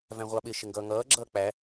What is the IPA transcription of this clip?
væ̃ʁʷɑɓɪ ʃɪŋɡʌːŋʌː ɡ͡ǁʌːk͡pæ

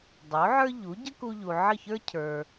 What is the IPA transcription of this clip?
dˤo˩˥ʕə˞˥ʎu˩˥ ɟə˥ku˧ʎu˩ ʕə˥˩çə˞˥ cʰə˞˩

